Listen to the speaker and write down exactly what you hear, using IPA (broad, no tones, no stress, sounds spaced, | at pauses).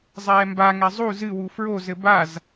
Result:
zˤ ɛː m b a ŋ ɛ zˤ u z ɨ w u f ɹ o z ɘ b a z